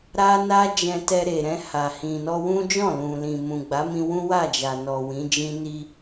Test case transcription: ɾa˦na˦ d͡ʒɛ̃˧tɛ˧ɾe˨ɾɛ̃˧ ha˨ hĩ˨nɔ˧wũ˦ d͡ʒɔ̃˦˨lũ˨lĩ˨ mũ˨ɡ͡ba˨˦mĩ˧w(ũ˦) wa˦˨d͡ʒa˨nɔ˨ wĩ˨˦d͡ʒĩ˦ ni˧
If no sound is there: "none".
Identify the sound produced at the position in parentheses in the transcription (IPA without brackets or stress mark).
ũ˦